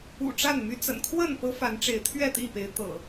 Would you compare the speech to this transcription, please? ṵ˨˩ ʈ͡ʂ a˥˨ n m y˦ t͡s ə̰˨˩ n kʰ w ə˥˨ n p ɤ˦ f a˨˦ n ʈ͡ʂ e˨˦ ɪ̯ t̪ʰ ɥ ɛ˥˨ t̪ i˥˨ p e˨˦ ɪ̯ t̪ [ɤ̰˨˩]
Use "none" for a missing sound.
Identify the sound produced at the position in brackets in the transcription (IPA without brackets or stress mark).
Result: ɤ̰˨˩